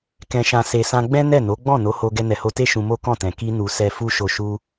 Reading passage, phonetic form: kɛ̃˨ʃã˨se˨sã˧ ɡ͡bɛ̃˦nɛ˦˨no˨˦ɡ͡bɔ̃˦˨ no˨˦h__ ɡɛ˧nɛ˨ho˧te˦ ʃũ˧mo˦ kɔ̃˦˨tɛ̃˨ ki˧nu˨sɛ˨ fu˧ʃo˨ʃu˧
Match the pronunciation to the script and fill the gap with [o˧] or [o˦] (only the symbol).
o˧